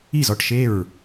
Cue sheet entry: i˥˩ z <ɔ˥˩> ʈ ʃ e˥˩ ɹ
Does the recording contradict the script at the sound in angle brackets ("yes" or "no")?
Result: no